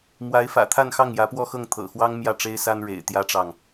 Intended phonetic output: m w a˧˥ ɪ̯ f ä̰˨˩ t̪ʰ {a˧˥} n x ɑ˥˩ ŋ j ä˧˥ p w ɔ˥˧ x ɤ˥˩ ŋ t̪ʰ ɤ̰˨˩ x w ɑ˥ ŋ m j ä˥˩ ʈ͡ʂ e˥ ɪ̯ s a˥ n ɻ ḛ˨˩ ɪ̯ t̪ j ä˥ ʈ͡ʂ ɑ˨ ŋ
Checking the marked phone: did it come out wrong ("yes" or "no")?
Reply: yes